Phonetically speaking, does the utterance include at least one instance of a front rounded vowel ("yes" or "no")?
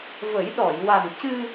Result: no